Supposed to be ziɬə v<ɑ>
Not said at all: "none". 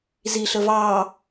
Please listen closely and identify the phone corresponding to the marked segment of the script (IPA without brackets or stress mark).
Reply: ɑ